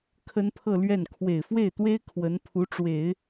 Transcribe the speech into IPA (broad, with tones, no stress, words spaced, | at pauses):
kʰə˥npʰɤ˥˧lɥɛ˥˩n kʰwe˨˩ɪ̯fwe˥˩ɪ̯t̪we˥ɪ̯ kʰwə˧˥npʰu˧˥ʈ͡ʂwe˨˩˦ɪ̯